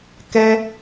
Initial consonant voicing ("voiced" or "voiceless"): voiceless